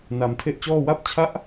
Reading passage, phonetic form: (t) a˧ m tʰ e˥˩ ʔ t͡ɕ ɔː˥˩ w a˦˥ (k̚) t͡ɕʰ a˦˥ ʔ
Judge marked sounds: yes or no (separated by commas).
no, no